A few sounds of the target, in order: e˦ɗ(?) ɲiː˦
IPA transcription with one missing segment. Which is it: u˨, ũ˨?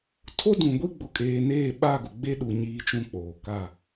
u˨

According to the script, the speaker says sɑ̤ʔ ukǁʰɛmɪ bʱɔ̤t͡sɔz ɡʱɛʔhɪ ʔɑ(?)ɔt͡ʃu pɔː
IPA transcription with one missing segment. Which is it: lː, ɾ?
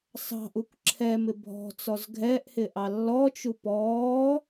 lː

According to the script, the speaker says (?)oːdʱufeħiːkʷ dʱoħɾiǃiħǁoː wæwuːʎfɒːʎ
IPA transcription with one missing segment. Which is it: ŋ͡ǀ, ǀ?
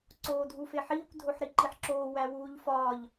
ǀ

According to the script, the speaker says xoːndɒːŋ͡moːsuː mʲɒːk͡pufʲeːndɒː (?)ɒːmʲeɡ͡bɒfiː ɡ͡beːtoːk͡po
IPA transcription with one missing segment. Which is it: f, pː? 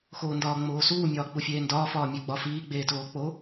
f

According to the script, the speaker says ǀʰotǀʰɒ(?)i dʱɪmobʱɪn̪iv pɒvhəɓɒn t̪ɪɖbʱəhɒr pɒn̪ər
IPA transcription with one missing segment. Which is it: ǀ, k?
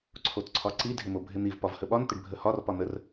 ǀ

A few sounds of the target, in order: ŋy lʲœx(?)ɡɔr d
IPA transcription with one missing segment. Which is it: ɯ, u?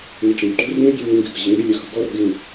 ɯ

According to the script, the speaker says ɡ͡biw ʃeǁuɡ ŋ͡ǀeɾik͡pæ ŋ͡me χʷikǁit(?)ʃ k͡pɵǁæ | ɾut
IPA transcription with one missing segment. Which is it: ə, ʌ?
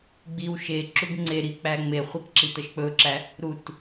ʌ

